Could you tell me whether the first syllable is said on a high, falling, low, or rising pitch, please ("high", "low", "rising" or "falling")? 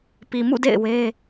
low